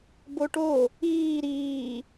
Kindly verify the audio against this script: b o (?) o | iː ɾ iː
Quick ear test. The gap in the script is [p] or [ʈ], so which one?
ʈ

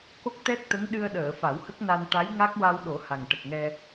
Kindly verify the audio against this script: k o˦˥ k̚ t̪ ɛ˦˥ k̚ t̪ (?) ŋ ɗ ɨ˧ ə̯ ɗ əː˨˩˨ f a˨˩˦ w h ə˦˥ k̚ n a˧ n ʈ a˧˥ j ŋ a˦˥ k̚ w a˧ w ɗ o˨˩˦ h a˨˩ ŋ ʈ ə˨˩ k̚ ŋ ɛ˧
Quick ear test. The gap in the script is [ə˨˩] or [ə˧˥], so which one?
ə˧˥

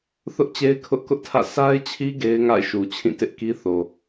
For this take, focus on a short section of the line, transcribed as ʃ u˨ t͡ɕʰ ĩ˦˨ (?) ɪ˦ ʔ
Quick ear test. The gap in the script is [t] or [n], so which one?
t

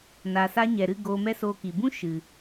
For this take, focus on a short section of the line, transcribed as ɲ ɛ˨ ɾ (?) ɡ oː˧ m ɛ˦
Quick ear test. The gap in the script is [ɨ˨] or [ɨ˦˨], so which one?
ɨ˦˨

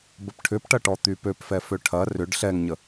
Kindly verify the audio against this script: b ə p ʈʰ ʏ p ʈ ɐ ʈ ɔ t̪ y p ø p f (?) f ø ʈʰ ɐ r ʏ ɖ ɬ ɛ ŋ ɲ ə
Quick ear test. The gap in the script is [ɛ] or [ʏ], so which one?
ɛ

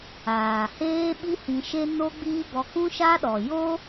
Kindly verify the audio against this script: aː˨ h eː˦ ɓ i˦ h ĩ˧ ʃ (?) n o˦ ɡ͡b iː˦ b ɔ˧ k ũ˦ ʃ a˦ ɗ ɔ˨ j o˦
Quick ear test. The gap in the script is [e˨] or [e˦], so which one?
e˦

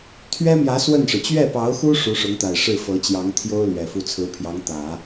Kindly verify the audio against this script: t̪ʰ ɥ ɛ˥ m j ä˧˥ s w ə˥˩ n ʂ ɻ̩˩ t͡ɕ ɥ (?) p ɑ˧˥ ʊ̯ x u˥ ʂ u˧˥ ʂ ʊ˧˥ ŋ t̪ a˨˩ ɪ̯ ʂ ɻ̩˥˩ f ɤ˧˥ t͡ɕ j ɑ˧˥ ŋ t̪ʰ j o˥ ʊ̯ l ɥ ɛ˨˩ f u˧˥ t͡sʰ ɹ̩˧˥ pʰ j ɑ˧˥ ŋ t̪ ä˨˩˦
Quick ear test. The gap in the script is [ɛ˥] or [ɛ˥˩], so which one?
ɛ˥˩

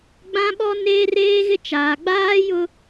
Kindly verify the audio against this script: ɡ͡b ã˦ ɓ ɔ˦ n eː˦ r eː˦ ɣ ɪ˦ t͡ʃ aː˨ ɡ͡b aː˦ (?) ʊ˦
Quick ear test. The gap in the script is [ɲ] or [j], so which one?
j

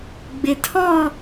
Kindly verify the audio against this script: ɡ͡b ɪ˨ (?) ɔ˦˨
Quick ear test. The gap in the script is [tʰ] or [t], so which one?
tʰ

